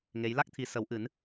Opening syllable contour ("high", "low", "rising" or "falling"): rising